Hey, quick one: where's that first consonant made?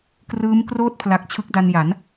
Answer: velum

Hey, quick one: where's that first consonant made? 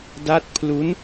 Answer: tongue tip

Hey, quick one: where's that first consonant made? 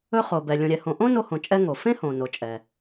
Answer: uvula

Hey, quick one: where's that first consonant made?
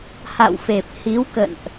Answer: throat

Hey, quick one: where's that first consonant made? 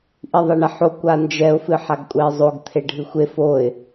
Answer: throat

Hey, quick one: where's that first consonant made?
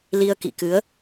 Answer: tongue tip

